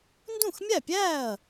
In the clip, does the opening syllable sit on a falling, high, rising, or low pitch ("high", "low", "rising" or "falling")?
falling